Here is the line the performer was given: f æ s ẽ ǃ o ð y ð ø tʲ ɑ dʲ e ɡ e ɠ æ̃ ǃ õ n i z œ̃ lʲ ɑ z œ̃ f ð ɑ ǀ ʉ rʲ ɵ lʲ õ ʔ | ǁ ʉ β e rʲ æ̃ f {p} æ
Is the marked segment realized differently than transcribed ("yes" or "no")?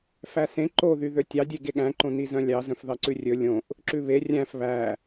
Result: yes